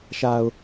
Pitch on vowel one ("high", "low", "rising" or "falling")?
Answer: low